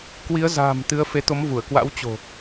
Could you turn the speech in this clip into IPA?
k w i˨˦ ə̯ z a̤ː˨˩ m t̪ ɨ˨˦ ə̯ f e˨˦ t̪ o˨˦ m v u˧˩ ə̯ k w a̰˧˥ w t͡ɕ o̤˨˩

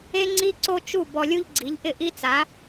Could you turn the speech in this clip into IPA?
e˥ ŋ͡ǀ i˥ ǀ o˥ t͡ʃ u˥˩ b ɔ˧ lʲ u˥ ʎ ɡ͡ǀ i˩˥ ʎ ʔ ɪ˥˩ ʔ i˥ t͡s a˩˥

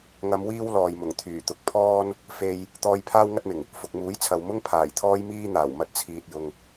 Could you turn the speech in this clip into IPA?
ŋ ɐ˨˧ m w iː˥ w l ɔː˨ j m ʊ˨˩ ŋ t̪ʰ yː˨˩ t̪ ʊ˨ k̚ pʰ ɔː˥ n | f e˧ j | t̪ ɔː˧ j pʰ aː˥ w ŋ ɐ˥ t̚ m ɪ˨˩ ŋ | f ʊ˨ k̚ m uː˨˥ j t͡sʰ ɐ˨ w m ʊ˥ ŋ pʰ aː˨˩ j t̪ʰ ɔː˥ j m iː˥ n̪ aː˨˩ w m ɐ˧ t̚ t͡sʰ iː˨ t̚ j ʊ˨ ŋ

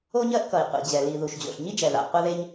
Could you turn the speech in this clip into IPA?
o˥ ɲ ɜ˥ ʔ k ʌ˩ i̯ qʷ ḭ˩ d͡ʑ ɛ˩ l i˩ ð u˩ ʃ d͡ʑ o̰˩ ɬ ɲ i˥ d͡ʒ ɛ˩ ð a̰˩ qʷ a˥ ð e˥ ɲ

